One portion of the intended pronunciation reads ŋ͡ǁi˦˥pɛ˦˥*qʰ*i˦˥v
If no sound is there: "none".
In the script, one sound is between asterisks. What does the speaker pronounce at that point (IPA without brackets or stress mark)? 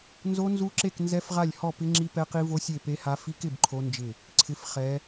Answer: q